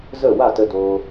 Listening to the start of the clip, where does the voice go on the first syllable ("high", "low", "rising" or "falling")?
falling